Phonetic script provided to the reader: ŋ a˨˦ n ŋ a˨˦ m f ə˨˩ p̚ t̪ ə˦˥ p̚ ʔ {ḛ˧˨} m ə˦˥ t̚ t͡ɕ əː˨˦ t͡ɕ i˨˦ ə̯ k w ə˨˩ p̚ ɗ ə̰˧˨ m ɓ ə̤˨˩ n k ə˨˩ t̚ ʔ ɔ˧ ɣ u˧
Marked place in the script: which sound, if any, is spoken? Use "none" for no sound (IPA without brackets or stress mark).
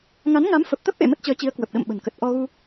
ḛ˧˨